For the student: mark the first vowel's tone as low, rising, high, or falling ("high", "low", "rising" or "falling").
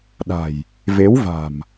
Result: low